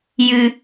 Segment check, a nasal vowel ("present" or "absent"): absent